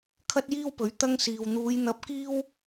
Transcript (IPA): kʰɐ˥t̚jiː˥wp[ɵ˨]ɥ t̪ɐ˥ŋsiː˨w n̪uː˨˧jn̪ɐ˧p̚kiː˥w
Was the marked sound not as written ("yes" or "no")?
yes